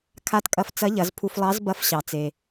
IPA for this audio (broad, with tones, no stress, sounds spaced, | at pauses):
kʰ a˧˥ t kʼ ɐ˧ f t͡s ɐ˧˥ ʎ ɐ˩˧ z pʰ u˧ f lˠ ɑ˧˥ z b ɐ˧˥ f ɕ ɑ˩ t͡s e˩